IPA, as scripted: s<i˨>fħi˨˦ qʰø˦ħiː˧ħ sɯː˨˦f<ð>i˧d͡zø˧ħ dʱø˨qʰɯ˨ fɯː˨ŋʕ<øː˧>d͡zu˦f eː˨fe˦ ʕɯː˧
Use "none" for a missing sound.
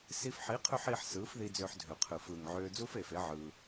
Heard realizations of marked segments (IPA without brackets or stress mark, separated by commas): i˧, ð, øː˧